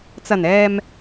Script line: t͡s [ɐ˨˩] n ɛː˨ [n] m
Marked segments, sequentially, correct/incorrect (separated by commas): correct, incorrect